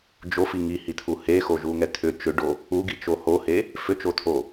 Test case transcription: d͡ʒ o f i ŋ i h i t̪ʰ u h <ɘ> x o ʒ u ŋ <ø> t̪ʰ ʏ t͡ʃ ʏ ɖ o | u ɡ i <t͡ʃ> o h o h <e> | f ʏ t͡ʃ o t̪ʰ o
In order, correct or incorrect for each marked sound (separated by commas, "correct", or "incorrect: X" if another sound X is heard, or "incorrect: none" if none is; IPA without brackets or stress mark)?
incorrect: e, incorrect: ɛ, correct, correct